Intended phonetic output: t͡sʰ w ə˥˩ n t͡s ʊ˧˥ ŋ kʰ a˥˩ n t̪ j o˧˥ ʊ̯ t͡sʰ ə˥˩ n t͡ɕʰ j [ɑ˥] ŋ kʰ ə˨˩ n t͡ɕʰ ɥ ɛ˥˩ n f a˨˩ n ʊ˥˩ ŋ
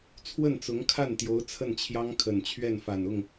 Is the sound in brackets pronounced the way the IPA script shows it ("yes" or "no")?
yes